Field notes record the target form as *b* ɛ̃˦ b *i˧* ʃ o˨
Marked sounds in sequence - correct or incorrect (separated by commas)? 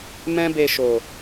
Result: incorrect, incorrect